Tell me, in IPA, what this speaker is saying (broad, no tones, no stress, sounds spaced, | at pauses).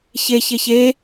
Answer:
ç e ç e ç e